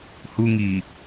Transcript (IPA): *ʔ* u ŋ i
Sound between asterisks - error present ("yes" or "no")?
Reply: yes